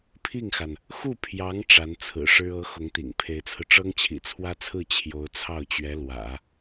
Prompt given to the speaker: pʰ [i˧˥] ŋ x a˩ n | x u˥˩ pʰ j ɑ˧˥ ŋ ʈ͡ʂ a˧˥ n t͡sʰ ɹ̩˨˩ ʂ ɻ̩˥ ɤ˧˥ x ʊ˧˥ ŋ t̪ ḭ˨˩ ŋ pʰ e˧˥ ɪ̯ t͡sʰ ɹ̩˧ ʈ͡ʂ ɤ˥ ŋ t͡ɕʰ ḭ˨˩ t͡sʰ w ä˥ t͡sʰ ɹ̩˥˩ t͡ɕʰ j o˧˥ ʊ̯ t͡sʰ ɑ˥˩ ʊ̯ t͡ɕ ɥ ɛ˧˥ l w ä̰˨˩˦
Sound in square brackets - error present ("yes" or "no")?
yes